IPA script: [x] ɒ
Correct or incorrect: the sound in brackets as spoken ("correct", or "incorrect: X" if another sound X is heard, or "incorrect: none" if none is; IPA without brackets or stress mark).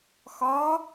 correct